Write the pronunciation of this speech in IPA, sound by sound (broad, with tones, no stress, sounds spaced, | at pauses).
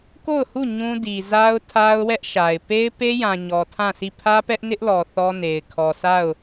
k o˦˨ ʊ̯ h u˦˨ ɲ ũ˦ d i˨ z a˦ ʊ̯ tʰ a˦ ʊ̯ w ɛ˦ ʔ ʃ a˨ ɪ̯ p e˦ ɪ̯ p e˦ j ã˨ ɲ ɔ˨ tʰ ã˦˨ s i˦˨ pʰ ä˦ p ɛ˦ ʔ n ɪ˦ ʔ l ɔ˨ θ ɔ˦ n e˨ ɪ̯ kʰ ɔ˨ sʰ a˦˨ ʊ̯